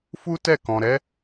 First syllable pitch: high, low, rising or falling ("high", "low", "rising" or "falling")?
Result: high